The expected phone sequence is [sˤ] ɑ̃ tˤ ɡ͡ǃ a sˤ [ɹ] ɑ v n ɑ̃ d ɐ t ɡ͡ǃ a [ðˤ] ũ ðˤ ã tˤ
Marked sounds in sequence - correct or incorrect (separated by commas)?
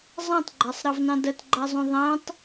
incorrect, incorrect, incorrect